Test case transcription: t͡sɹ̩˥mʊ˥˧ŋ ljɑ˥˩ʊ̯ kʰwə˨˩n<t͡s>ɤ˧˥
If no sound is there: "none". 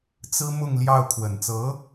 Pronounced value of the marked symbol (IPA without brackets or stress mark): t͡s